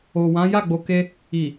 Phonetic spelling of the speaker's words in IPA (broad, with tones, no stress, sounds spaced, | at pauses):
o˨ w ã˨˦ j a˦˨ ɡ͡b o˨ k e˧ | i˨